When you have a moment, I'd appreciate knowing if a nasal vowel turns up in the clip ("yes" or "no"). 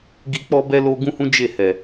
yes